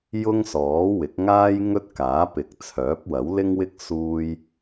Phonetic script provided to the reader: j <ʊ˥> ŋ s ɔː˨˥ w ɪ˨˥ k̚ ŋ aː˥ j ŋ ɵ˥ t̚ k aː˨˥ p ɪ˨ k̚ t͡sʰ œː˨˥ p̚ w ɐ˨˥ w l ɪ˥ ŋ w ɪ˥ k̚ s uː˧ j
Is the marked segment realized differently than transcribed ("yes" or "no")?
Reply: no